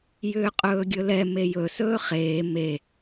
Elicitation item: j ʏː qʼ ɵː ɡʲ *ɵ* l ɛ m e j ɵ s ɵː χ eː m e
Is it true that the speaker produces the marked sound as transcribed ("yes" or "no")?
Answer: yes